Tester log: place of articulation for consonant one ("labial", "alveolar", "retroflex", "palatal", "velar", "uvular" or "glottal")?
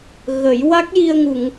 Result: velar